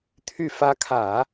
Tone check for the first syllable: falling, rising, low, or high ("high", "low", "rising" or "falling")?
low